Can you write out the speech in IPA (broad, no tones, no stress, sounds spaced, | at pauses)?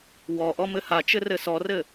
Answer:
w ɔ ʔ ɔ m ɘ h a t͡ʃ ɘ r ɘ s ɔ r ɘ